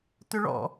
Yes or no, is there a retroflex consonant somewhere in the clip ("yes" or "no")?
yes